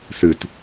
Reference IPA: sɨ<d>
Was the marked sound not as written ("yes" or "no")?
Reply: yes